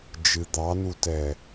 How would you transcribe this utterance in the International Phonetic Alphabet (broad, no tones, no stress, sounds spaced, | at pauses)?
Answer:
d͡ʒ ɨ d̪ ɑ n u t ɛ